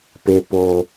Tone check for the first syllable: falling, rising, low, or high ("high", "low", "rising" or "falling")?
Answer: high